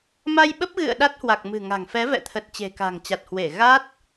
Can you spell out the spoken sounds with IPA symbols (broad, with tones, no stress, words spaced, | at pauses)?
ma˧jɓə˦˥p̚ɣɨ̰˧˨ə̯ ɗa˦˥t̚hwa˨˩k̚ mɨ̤˨˩ŋa̤˨˩ŋ fɛ˨˦vɛ̰˧˨t̪ʰə˨˩t̚ t͡ɕe̤˨˩ka̤˨˩ŋt͡ɕa˨˩t̚hwe˧˩ ɣa˦˥t̚